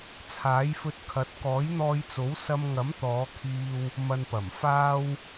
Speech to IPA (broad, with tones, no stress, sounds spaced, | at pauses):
t͡sʰ aː˨˥ j f ɵ˧ t̚ kʰ ɐ˨˥ t̚ k ɔː˨˥ j n̪ ɔː˧ j t͡s o˨˥ w s ɐ˧ m ŋ ɐ˨˥ m t̪ ɔː˨˧ kʰ iː˧ w | m ɐ˨ n p ɐ˨˩ m f aː˧ w